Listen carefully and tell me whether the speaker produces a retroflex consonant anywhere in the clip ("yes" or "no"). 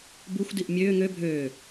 no